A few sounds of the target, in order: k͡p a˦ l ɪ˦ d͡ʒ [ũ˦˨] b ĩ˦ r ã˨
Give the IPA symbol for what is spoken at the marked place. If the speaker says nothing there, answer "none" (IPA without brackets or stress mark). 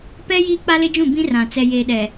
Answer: ũ˦˨